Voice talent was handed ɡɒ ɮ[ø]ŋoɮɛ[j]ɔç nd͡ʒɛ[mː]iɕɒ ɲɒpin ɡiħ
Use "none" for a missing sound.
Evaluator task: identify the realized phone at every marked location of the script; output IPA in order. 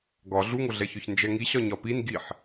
u, ç, ŋ

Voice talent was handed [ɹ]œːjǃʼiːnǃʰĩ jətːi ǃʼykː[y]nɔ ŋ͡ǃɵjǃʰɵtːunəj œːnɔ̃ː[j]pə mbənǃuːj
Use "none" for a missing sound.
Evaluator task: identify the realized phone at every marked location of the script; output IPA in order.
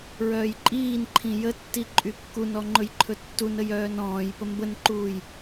ɹ, u, j

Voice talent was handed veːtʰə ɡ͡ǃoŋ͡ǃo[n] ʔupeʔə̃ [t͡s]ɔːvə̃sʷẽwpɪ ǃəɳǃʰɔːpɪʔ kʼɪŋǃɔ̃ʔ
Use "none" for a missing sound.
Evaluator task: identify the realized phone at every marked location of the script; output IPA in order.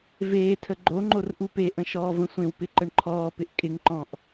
r, ʃ

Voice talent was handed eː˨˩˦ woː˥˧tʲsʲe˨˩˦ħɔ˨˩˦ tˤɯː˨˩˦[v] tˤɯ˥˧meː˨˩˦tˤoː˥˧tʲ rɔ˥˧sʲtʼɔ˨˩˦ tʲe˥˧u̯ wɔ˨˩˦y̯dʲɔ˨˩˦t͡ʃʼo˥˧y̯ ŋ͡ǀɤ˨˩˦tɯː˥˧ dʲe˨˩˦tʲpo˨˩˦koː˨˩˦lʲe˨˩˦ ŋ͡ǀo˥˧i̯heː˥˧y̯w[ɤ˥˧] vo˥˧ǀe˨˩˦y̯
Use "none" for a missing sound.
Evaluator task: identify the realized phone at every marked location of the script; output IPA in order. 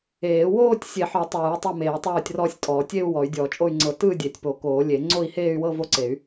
none, ɤ˥˧

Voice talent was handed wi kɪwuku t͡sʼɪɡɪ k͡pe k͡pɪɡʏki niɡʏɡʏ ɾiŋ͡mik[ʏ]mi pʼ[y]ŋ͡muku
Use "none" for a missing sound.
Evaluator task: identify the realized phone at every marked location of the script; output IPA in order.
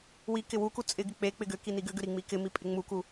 ɪ, ɪ

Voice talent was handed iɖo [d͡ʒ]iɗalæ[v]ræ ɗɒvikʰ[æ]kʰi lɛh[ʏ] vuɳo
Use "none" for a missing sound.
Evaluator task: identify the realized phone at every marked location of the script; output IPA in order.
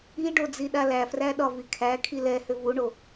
d͡z, f, æ, ʏ

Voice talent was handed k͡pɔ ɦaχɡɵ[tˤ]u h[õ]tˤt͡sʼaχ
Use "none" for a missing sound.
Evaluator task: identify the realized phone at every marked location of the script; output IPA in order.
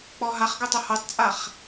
tˤ, o

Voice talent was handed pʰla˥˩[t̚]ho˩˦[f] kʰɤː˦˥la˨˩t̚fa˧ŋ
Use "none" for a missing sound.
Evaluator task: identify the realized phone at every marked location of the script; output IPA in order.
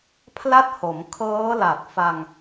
t̚, m

